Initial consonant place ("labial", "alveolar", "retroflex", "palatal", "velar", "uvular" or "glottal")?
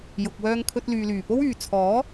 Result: palatal